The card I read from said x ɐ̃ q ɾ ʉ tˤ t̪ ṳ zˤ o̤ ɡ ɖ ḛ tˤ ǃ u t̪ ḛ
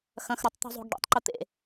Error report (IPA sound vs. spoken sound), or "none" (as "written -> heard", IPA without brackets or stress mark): q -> x